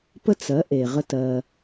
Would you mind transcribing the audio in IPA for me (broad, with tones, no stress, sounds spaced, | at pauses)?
p ə˥ t͡s ɜ˩˥ ʔ e˩ ʁ ə˧ t ɜ˩